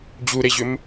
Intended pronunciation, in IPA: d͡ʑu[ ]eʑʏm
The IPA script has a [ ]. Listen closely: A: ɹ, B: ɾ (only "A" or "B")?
B